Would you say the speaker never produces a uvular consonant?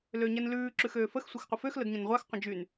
no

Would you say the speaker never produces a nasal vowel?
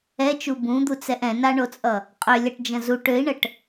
no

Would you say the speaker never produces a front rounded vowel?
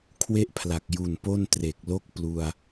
yes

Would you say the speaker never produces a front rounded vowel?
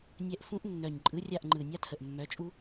no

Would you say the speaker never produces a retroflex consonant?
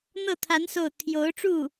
no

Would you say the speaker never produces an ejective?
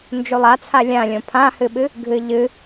yes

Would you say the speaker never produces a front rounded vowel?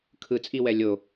yes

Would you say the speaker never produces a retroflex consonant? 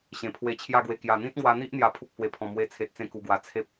yes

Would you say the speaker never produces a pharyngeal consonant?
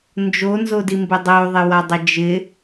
yes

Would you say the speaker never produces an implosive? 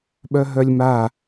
no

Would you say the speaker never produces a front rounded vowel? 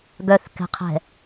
no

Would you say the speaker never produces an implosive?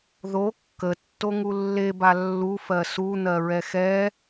yes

